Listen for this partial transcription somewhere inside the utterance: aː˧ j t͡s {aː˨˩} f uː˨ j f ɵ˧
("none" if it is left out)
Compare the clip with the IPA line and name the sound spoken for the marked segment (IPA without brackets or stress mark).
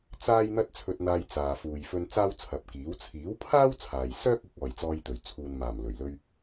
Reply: aː˨